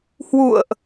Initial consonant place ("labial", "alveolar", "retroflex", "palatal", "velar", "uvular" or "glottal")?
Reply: glottal